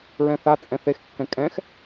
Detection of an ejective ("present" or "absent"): present